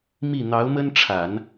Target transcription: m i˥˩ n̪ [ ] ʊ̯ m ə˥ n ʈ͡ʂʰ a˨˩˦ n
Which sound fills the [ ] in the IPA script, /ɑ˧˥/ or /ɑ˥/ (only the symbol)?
ɑ˧˥